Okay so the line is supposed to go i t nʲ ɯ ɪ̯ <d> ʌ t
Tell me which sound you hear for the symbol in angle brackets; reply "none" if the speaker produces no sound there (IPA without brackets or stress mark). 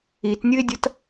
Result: dʲ